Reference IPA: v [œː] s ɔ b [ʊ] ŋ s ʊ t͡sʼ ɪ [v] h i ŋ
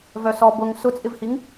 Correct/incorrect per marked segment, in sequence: incorrect: œ, correct, correct

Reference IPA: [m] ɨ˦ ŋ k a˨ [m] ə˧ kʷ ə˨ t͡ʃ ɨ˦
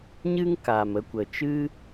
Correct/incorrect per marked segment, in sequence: incorrect: ɲ, correct

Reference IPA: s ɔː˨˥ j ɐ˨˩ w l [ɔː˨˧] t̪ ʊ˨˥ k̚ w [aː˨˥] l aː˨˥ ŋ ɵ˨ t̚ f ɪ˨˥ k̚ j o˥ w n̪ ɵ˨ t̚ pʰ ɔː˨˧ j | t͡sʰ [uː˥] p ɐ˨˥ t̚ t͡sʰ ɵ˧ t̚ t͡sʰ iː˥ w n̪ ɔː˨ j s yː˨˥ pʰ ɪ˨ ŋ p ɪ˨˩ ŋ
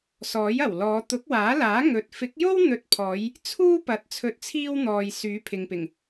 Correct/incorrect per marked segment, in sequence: correct, correct, correct

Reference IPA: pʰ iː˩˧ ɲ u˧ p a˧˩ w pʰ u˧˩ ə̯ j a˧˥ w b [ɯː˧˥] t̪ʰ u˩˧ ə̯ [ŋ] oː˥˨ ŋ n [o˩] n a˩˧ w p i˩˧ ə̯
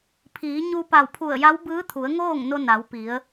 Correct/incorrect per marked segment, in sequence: correct, correct, incorrect: o˧

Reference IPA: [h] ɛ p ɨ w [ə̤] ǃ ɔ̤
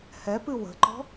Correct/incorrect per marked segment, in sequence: correct, correct

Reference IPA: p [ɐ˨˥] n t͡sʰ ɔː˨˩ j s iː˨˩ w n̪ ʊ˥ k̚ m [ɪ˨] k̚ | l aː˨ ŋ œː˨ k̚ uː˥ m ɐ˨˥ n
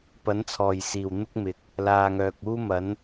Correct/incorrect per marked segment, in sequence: correct, correct

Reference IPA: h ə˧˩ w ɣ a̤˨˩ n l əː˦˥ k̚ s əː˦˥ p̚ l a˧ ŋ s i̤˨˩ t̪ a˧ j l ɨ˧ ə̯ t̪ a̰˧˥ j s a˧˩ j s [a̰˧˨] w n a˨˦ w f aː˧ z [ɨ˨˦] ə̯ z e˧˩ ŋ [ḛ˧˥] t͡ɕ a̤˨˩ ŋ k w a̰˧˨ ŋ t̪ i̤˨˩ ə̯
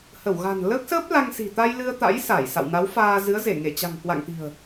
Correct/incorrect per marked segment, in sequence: correct, correct, incorrect: e˧˩

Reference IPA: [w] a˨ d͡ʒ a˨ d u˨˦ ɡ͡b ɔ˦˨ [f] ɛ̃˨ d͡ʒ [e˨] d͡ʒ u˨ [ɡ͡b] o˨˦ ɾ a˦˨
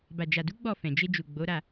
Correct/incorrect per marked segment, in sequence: incorrect: b, correct, incorrect: e˧, correct

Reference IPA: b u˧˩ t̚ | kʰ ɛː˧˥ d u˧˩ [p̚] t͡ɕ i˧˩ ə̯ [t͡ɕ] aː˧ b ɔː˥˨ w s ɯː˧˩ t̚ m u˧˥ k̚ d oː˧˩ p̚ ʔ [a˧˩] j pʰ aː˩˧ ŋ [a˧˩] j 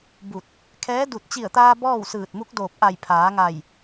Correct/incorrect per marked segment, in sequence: incorrect: t̚, incorrect: t̪, correct, correct

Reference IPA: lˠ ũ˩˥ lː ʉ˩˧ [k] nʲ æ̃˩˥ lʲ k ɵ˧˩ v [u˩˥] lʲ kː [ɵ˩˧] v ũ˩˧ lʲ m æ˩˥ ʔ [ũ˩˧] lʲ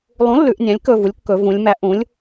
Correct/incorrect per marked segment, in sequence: incorrect: ʔ, correct, correct, correct

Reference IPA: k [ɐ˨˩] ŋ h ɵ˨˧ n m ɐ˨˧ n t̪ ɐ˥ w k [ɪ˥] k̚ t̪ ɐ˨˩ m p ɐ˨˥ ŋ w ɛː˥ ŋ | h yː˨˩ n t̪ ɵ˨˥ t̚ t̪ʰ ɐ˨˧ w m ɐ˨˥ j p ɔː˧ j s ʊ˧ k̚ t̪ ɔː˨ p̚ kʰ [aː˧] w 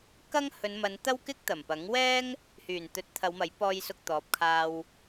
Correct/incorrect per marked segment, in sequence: incorrect: ɐ˥, correct, correct

